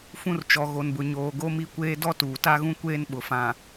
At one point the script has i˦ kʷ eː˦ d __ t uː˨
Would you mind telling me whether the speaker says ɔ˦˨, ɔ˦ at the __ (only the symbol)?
ɔ˦